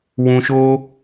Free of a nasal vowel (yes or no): no